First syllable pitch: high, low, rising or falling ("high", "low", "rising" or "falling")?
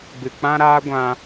low